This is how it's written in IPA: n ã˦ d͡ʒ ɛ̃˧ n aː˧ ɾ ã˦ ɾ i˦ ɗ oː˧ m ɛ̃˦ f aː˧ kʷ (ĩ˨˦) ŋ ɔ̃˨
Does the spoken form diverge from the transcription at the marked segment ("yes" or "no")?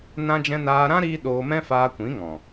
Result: no